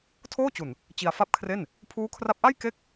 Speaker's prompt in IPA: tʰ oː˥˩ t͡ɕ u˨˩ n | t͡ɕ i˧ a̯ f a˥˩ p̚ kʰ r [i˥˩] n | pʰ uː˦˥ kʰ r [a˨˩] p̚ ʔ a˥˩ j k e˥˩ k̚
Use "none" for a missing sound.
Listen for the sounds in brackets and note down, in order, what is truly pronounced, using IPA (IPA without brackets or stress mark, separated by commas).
e˥˩, a˦˥